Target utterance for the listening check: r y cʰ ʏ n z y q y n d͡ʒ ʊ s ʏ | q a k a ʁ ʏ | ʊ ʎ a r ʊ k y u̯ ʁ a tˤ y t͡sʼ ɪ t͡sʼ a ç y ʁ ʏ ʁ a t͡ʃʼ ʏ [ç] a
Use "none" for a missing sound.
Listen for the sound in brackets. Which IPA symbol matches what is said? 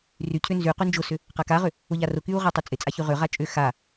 x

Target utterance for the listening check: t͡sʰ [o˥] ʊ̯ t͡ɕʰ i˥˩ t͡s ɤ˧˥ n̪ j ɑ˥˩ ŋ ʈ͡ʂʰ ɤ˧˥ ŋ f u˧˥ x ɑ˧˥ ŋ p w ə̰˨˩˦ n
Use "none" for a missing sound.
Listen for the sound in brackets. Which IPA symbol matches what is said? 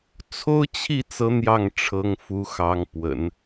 o˥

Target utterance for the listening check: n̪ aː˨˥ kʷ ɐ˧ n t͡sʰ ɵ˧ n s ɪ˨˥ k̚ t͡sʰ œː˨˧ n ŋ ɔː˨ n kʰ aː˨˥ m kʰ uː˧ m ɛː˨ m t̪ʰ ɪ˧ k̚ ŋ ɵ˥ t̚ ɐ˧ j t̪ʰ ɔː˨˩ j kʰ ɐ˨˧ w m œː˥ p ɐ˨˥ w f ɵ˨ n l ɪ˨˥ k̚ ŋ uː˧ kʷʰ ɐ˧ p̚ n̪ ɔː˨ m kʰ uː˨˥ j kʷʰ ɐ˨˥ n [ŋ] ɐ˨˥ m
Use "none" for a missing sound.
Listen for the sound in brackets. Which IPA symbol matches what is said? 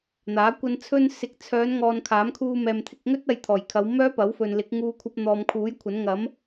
ŋ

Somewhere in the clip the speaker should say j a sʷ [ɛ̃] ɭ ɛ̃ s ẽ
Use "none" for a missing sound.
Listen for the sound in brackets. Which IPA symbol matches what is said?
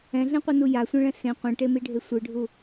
ẽ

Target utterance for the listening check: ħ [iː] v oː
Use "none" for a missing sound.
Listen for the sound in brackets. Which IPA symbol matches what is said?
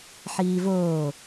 iː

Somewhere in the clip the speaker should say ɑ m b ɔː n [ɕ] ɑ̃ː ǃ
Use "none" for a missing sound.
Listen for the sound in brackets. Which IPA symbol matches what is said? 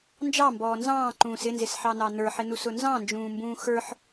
z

